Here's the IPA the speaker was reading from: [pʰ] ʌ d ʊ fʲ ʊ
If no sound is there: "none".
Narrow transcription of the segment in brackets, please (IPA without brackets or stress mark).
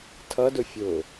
tʰ